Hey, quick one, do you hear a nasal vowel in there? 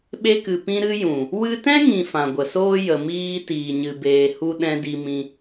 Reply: yes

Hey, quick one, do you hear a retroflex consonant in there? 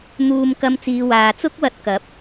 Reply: no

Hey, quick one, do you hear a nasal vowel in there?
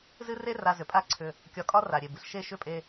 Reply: no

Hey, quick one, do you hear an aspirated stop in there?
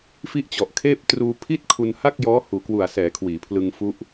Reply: yes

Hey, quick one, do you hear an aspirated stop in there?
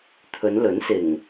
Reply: yes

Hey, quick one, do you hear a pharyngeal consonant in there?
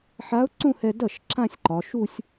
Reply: yes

